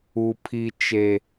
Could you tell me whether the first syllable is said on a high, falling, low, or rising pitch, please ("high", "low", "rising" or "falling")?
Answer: low